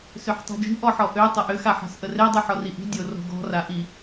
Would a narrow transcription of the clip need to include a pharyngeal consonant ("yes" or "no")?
yes